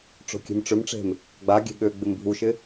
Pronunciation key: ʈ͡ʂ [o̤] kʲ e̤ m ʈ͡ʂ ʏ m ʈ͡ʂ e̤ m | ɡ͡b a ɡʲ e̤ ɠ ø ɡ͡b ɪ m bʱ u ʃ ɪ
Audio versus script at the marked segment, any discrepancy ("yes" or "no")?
no